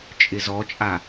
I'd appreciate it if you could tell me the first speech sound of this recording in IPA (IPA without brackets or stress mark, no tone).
t͡ʃʼ